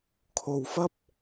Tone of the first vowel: low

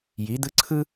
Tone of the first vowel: rising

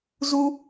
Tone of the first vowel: high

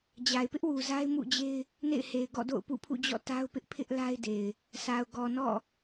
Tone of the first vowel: low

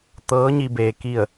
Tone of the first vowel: rising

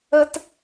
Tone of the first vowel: high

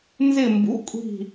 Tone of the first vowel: falling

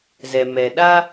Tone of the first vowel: low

